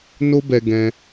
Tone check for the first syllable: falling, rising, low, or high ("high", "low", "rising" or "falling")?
high